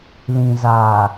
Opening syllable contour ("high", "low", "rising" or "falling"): low